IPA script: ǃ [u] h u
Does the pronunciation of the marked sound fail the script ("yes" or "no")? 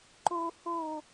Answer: no